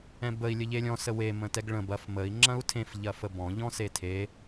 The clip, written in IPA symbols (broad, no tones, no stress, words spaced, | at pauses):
ɛ̃bəi̯ lʲəʎelʲɔ̃ səwe mə̃tɛɡɭə̃ bɐf məi̯ ŋ͡ǁɐ̃u̯tʰẽf ʎɐfəbɔ̃ ʎɔ̃setʰe